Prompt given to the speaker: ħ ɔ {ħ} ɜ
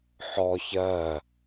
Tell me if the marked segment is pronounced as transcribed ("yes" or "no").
no